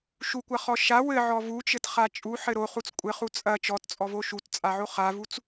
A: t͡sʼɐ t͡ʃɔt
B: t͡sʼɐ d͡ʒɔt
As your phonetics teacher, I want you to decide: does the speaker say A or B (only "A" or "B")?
A